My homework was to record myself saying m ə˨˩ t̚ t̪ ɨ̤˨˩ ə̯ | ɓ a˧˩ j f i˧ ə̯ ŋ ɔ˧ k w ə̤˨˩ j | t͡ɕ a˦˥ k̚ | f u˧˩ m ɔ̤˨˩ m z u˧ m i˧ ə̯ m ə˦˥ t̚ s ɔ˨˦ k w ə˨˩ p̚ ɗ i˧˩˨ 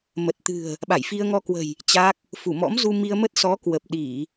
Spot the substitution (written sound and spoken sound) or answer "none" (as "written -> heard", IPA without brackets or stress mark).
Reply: ɔ̤˨˩ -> ɔ̰˧˥